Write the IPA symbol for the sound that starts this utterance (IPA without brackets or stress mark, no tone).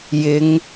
j